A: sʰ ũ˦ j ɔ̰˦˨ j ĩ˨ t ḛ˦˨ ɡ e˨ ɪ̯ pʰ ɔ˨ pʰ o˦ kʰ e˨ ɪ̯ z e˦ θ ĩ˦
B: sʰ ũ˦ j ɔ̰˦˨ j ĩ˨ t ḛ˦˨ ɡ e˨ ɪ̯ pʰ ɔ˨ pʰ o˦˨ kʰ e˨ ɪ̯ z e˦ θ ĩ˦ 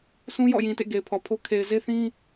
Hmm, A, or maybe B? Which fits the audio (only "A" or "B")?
A